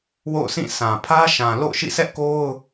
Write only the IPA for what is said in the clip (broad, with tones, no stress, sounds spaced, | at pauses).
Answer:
w o̰˦˨ ʊ̯ sʰ ĩ˦˨ s ã˨ pʰ ä˦ ʃ ã˨ l o̰˦˨ ʊ̯ ʃ ḭ˦˨ sʰ ɛ˦ ʔ k o˦ ʊ̯